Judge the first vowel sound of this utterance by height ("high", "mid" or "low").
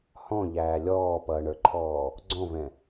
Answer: mid